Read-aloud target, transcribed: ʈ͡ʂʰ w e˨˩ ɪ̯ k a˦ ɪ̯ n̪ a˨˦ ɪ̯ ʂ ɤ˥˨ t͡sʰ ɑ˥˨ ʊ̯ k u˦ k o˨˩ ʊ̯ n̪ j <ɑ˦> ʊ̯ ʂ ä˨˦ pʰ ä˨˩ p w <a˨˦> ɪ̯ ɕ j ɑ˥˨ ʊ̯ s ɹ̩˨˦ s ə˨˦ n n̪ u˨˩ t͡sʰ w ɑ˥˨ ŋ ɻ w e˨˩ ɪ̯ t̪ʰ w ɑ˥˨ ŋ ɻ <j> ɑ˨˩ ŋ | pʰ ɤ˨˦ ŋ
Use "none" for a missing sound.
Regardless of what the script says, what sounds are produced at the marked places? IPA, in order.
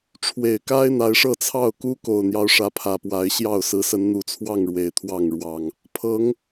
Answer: ɑ˦, a˨˦, w

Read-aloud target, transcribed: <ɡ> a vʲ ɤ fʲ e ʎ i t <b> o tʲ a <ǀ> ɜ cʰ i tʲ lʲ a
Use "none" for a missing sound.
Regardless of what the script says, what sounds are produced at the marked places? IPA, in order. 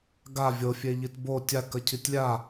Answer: ɡ, b, k

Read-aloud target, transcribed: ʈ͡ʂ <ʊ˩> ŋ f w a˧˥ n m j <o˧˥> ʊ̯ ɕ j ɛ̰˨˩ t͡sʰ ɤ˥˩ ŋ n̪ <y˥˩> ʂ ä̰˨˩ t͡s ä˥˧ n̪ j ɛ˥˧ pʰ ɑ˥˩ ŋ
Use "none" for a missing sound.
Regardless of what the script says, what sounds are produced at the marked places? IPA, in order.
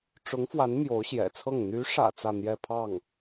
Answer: ʊ˧˥, o˧˥, y˧˥

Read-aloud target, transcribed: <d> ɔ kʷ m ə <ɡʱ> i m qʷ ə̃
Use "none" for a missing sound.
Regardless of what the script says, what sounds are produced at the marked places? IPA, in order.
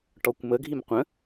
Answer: ʈ, ɡʱ

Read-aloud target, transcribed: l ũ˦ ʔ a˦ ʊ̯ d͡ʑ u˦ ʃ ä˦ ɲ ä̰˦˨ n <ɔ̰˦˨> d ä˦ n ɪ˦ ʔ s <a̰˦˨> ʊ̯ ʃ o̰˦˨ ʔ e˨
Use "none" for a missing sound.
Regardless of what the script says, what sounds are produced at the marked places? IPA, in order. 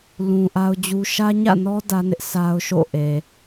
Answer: ɔ˦, a˦

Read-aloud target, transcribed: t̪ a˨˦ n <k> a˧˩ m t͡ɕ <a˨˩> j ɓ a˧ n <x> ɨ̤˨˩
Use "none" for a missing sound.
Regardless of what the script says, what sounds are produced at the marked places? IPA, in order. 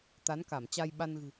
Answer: k, a˧, ɣ

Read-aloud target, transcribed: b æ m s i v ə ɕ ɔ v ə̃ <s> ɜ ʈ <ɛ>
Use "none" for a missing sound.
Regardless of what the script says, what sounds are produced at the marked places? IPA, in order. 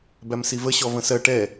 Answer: s, ɛ

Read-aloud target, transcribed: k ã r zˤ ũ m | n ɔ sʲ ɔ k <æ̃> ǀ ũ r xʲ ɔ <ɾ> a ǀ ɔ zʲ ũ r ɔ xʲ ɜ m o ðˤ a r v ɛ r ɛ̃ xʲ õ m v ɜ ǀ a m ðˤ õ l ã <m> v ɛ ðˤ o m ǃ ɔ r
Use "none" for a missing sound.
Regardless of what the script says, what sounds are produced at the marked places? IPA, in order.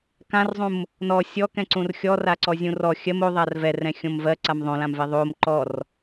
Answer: ɛ̃, r, m

